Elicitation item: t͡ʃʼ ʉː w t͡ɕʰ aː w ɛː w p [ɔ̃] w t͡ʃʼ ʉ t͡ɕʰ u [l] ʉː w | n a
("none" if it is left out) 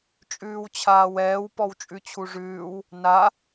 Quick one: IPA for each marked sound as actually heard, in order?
ɔ, ʐ

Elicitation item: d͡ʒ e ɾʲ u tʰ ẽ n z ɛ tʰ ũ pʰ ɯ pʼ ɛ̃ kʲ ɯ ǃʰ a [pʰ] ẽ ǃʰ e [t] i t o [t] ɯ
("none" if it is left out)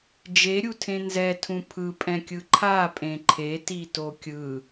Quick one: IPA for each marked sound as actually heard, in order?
pʼ, t, kʲ

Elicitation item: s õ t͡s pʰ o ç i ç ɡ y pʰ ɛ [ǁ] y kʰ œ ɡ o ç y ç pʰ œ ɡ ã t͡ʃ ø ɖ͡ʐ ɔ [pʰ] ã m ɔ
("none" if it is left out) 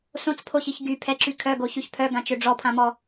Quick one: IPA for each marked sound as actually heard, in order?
ǁ, pʰ

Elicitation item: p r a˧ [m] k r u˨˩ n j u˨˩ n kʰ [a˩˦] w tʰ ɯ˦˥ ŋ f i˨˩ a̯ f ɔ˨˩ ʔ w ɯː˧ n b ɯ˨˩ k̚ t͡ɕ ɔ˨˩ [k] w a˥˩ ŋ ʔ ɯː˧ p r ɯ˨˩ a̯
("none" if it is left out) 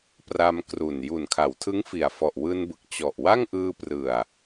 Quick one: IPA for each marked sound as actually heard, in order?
m, a˩˦, ʔ

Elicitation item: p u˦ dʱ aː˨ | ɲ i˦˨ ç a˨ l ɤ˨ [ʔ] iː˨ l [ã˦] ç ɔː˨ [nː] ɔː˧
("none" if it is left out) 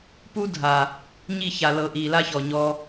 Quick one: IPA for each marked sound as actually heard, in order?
ʔ, a˦, ɲ

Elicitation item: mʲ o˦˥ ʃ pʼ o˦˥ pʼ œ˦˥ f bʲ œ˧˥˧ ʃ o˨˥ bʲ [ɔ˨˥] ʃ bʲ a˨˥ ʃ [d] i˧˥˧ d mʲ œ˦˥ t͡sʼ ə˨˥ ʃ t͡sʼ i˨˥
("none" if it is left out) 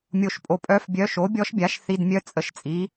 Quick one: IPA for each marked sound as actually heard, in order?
ɔ˦˥, θ

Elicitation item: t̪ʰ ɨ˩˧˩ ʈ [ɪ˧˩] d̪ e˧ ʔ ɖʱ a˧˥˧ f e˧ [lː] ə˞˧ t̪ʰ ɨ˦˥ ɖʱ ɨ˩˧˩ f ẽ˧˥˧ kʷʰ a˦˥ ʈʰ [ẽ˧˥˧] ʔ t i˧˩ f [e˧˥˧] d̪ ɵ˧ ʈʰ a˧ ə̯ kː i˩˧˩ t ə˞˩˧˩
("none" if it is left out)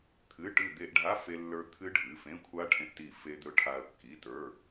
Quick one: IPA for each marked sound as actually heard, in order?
ɨ˧˩, lː, ẽ˧, e˧

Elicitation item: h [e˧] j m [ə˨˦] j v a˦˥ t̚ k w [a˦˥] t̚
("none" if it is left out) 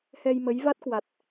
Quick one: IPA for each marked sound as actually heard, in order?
ɛ˧, ə˨˦, a˨˩

